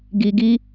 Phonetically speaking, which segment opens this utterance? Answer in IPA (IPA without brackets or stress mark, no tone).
ɡ